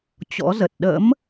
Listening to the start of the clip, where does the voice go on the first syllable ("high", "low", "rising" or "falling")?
rising